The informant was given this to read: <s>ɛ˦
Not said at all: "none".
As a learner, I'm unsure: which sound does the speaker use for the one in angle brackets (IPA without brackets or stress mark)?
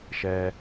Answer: ʃ